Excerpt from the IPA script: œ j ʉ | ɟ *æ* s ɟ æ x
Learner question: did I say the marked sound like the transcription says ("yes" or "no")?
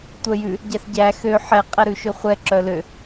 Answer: yes